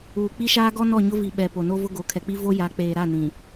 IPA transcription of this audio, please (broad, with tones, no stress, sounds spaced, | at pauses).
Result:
uː˨ k͡p i˦ ʃ aː˦ ɡ ɔ˦ n ɔ˦˨ ɲ ʊ˦ v i˨ ɓ ɛ˨ p o˨ n o˦ v ʊ˦ ɡ o˨˦ kʰ ɛ˨ k͡p i˦ v o˦ j a˨˦ k͡p eː˨ ɾ a˦˨ n ĩ˨